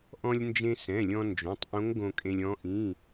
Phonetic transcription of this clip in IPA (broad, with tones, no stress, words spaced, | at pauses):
ʔɔ̃˧lʲnd͡ʒẽ˧ sɛ̃˩˧˩lʲɔ̃˧ nd͡ʒõ˩˧˩tˤʔõ˧˥ŋ ɡõ˧kʼẽ˧lʲɔ̃˧˥ ʔĩ˩˧˩